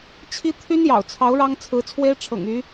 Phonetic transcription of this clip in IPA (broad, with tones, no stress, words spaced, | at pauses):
t͡ɕʰi˥ t̪ʰy˥njɑ̰˨˩ʊ̯t͡sʰɑ˧˥ʊ̯ ɻɑ˥ŋt͡sʰɹ̩˧˥t͡sʰwe˥ɪ̯ ʈ͡ʂʰɤ̰˨˩ŋy˧˥